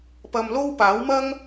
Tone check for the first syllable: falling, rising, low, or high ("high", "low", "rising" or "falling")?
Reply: low